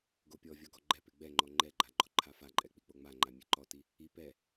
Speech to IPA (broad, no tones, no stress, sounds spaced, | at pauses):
ɡ o pʲ ɔ vʲ ɔ ɡ ɔ ɡ͡ǃ ɛ p e ɡ͡b ɛ ŋ͡ǃ ɔ ŋ͡ǃ ɛ ɡ͡ǃ a ɡ͡ǃ ɔ ǃʰ a f a ǃʼ ɛ k͡p i k͡p o ŋ͡m a ŋ͡ǃ a mʲ e ǃ ɔ t i | i p ɛ